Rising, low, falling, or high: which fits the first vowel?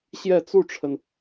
falling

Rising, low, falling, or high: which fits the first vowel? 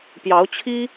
rising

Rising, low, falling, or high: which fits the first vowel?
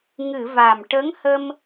low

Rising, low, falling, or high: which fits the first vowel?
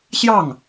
falling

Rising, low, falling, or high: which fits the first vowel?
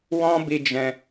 high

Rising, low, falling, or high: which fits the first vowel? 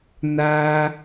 high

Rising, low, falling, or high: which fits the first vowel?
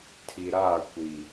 low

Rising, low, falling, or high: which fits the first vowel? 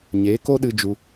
rising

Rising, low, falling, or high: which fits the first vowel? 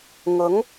rising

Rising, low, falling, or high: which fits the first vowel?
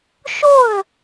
falling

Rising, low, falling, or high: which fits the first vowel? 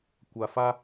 low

